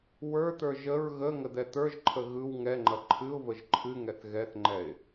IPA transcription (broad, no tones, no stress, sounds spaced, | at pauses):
w ə˞ t̪ ə˞ ʒ ə ɹ ɣ ə ŋ ə d̪ ɛ t̪ ə˞ ʒ ǃʰ ə ɣ ɯ w ŋ ɛ ŋ͡ǃ ɐ ǃʰ ɨ ʊ̯ v ə ʒ ǃʰ ɨ ŋ ɛ θ ɣ ɛ θ ŋ͡ǃ ɛ ɪ̯